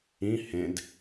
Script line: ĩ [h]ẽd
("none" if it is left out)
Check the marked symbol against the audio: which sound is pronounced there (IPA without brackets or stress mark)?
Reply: h